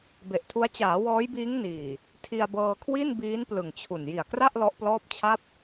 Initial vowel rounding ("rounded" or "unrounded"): unrounded